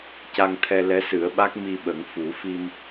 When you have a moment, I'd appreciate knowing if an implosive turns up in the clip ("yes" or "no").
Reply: yes